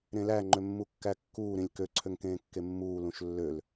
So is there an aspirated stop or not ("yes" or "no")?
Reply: yes